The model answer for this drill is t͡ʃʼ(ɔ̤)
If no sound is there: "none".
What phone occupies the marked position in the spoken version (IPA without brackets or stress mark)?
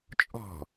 ɔ̤